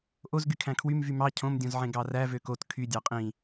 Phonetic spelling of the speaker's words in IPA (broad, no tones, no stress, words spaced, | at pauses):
ʔozɡykʰæ̃ kʰwym vymɑ cʰõmdʲõzʕẽ ɡɑræ vøkot kʰy dʲɑqʼĩ